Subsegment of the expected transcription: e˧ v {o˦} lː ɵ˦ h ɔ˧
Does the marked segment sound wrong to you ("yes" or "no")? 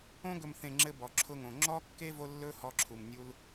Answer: no